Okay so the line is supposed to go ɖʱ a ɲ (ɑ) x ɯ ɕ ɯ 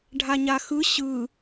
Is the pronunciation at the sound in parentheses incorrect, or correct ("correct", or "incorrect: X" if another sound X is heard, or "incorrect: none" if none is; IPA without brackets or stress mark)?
incorrect: a